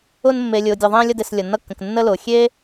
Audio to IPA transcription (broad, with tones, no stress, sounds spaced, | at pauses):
ʊ˧ n mː e˨ lʲ ʊː˨ dʲ ʌ˨ ðˤ ẽː˧ lʲ ʌ˧ d e˨ s lʲ ʌ˨ nː ʌ˧ kː ə̃˨ k nː ə˧ l ʊː˨ xʲ eː˦